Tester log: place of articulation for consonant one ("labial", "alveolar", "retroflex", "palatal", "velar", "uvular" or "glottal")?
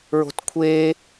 alveolar